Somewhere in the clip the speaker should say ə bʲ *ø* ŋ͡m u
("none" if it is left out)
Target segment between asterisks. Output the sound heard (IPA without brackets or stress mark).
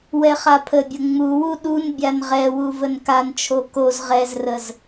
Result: ə